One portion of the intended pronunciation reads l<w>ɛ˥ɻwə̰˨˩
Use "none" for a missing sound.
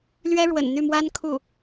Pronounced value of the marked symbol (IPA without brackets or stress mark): ɥ